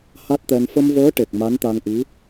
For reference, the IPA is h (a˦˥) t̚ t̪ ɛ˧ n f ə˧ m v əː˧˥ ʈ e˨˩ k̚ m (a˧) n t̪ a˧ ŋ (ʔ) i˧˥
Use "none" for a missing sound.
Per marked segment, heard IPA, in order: a˦˥, a˧˥, ʔ

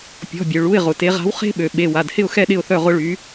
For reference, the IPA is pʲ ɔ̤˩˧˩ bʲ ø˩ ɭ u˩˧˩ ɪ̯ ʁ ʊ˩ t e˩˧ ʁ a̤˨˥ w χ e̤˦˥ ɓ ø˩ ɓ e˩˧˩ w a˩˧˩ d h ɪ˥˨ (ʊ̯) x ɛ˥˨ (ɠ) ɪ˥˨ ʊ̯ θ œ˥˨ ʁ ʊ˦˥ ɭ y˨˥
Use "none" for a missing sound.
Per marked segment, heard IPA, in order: ʊ̯, ɗ

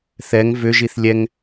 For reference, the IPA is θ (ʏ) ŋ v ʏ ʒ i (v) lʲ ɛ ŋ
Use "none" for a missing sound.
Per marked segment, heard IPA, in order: ɛ, θ

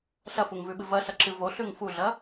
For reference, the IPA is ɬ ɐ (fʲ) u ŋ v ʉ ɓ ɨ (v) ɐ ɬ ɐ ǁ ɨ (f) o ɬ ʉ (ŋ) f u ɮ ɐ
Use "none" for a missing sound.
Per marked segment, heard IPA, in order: f, v, v, ŋ

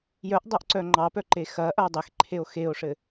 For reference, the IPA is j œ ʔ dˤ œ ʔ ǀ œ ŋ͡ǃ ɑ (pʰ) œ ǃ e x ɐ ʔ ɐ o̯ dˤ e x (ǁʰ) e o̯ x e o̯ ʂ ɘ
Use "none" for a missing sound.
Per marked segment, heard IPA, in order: p, ǃʰ

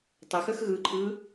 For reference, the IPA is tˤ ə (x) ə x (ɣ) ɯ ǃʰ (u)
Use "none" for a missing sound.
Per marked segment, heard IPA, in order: x, ɣ, ɯ

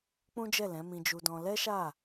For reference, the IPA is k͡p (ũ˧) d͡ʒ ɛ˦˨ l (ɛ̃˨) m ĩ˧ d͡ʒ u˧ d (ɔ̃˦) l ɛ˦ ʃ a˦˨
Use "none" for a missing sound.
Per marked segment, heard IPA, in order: ũ˦, ɛ̃˨˦, ɔ̃˧

